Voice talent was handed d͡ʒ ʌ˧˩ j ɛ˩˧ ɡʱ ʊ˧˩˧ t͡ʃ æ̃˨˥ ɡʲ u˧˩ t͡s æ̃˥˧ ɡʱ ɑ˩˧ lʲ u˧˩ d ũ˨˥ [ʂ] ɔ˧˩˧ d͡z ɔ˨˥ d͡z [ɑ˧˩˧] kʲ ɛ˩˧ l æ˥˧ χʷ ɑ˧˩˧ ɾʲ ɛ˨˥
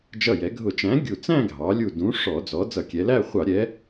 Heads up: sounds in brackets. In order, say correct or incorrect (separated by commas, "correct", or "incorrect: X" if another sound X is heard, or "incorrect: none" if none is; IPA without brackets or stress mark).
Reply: correct, incorrect: ʌ˧˩˧